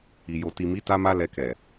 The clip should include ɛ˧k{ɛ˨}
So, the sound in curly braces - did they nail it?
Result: yes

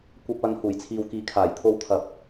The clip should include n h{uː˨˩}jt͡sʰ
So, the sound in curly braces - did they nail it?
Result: yes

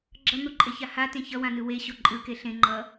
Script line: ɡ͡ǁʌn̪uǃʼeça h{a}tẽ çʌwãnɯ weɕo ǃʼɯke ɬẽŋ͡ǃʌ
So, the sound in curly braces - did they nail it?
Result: yes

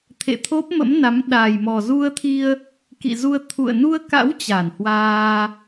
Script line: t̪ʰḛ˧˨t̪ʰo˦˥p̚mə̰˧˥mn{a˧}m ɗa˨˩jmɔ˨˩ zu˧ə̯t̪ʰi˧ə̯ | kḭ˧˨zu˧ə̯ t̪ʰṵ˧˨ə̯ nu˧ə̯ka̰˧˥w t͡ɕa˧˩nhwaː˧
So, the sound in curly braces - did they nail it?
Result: no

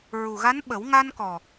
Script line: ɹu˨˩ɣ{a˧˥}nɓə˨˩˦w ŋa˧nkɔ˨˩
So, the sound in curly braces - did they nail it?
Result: yes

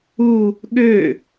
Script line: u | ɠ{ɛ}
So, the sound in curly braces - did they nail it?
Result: no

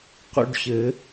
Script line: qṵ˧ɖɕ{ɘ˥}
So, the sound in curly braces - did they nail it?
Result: no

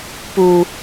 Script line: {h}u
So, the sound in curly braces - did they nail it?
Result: no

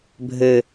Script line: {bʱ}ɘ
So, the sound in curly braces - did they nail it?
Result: yes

